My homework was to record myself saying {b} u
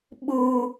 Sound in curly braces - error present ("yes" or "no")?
yes